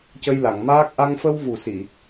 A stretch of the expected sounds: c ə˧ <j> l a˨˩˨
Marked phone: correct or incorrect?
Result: correct